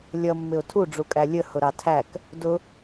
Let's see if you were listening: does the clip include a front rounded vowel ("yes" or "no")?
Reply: no